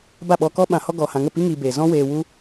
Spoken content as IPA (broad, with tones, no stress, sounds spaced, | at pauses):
b a˦˨ ɓ ɔ˧ k ɔ˦ ɓ ã˨ h ɔ˧ ɡ ɔ˨ h ã˨ ŋ ə˦˨ p i˦ ŋ iː˧ b eː˨ z ɔ̃˦ w eː˧ w u˦